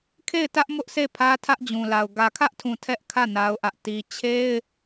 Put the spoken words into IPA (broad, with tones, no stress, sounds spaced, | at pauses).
kʰ e˦˨ ɪ̯ t ä˦ ʔ m ʊ˦ ʔ s e˦˨ pʰ ä˦ tʰ ä˦ ʔ d͡ʑ ũ˨ l a˨ ʊ̯ ɡ ä˨ kʰ ä˦ ʔ tʰ ũ˨ tʰ ɛ˦ ʔ kʰ ä˦˨ n a˦ ʊ̯ ʔ ä˦ ʔ t i˦ t͡ɕʰ e˦ ɪ̯